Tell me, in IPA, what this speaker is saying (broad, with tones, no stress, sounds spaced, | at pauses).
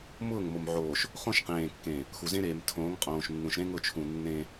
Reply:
m ʊː˦˨ ŋ m o˨ m ʕ oː˨ ʃ | χ õ˦ ʃ q ẽː˨ kː ẽ˨ | x u˨ z ẽ˦ ɾ eː˨ m tʰ õː˨˦ ŋ qʼ õː˨ ʃ nː ũ˨ ʃ ɾ ẽ˦ ŋ ʊ˦˨ t͡ʃʰ ũ˨ nː ẽ˦